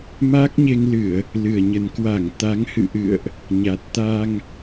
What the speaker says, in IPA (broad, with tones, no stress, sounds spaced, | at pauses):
m a˦˥ k̚ ɲ e˧ ŋ l ɨ˧˩˨ ə̯ | l ɨ˨˩ ə̯ ɲ ə˨˩ n k w a˧˩ ŋ t̪ a˨˦ ŋ h ɨ̰˧˨ ʔ ɨ̰˧˨ ə̯ ʔ | ɲ a˨˩ t̚ t̪ a˧ ŋ